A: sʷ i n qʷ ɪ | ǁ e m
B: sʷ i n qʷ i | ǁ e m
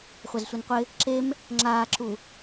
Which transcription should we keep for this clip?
A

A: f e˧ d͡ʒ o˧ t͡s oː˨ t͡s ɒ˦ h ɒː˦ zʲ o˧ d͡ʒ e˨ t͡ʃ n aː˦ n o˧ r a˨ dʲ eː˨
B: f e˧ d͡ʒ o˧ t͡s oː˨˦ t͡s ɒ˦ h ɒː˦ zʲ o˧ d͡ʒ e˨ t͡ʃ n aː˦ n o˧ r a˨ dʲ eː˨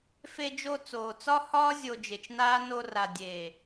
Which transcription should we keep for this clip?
A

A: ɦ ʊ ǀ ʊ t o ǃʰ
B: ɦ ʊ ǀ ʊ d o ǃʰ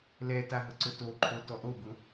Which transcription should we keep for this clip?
A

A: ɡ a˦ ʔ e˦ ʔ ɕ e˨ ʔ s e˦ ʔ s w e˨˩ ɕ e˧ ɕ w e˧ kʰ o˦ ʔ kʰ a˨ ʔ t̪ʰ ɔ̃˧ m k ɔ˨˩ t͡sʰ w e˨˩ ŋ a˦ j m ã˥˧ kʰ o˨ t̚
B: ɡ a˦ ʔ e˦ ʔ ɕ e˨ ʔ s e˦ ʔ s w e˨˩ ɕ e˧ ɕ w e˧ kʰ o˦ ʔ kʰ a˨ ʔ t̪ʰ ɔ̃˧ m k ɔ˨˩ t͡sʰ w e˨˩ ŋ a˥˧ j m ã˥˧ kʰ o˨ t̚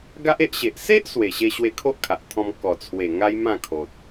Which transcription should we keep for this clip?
A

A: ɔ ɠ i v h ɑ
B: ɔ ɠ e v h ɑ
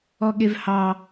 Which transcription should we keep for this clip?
B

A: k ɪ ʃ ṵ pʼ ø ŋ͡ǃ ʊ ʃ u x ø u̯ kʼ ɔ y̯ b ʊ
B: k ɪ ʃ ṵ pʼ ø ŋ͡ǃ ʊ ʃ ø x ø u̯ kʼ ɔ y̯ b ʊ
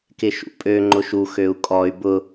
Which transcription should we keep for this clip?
A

